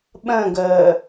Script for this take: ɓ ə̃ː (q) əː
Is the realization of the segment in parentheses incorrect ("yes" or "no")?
yes